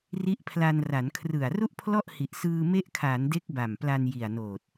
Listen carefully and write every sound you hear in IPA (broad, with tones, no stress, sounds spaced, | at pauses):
r i˦˥ ʔ pʰ l a˧ n r a˩˦ n kʰ r ɯ˨˩ a̯ r u˥˩ ʔ pʰ l ɔ˥˩ ʔ h i˨˩ ʔ s ɯː˧ m e˦˥ ʔ kʰ aː˩˦ n d e˦˥ k̚ b a˨˩ m p l a˧ n j i˨˩ a̯ n oː˨˩ t̚